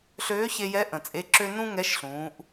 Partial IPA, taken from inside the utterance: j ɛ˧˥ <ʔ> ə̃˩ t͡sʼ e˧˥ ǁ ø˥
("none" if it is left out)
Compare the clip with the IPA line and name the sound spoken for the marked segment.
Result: ʔ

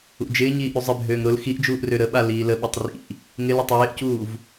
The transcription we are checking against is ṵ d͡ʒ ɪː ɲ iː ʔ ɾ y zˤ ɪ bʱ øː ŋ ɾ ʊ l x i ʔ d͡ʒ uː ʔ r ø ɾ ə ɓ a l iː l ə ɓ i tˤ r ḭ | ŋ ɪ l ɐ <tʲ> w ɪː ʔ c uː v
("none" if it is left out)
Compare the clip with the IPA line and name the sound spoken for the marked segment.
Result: tˤ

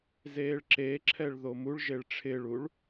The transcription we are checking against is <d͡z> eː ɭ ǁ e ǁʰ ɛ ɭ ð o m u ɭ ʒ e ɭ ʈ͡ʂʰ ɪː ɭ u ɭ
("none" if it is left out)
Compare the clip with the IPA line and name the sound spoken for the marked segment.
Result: z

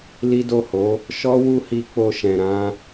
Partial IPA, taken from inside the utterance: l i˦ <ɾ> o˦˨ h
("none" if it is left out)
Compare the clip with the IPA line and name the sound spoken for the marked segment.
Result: d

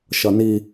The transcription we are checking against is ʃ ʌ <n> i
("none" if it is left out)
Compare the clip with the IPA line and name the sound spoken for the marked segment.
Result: n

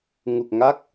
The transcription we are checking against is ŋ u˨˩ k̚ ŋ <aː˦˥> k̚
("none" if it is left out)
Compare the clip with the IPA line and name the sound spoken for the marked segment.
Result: a˦˥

